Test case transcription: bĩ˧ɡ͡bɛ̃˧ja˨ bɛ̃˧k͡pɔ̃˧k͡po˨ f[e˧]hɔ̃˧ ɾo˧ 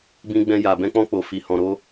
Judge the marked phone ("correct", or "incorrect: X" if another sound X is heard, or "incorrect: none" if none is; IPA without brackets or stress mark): incorrect: i˧